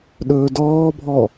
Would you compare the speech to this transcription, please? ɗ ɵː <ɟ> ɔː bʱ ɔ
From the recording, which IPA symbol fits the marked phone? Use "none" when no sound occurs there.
d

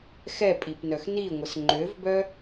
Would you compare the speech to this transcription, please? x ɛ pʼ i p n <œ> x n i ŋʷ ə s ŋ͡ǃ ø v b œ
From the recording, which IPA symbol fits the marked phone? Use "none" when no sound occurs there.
œ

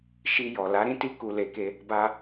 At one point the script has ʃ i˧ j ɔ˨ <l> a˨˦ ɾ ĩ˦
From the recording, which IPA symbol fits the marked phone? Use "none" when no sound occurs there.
l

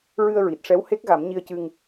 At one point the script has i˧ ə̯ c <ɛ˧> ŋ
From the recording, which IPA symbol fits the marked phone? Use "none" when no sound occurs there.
ɨ˧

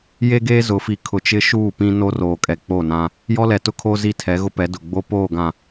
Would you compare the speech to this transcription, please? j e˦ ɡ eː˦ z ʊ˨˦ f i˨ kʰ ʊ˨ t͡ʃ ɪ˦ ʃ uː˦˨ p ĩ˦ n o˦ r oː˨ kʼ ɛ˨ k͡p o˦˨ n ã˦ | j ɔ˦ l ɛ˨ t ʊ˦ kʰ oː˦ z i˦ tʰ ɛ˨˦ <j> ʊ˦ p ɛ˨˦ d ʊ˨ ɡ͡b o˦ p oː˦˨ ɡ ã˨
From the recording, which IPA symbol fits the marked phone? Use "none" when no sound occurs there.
ɣ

